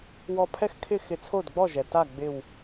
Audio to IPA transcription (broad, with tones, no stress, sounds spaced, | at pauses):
w ɔ˧˩ pʰ ɛ˥˩ x kʰ ɪ˥˩ x ɪ˧˩ t͡sʰ o˥˩ d ɡ͡b ɔ˥˩ ʒ ɛ˩ t a˥˩ ɡ͡b ɪ˧˩ w